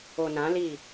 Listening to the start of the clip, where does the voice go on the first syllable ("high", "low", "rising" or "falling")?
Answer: low